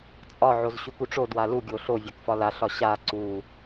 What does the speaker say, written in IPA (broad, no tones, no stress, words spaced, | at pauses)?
t͡sʼɒ ʕozɕukuʈ͡ʂod walu ɡʲoɬo vʲakfɒla ɬɒɕa ǀu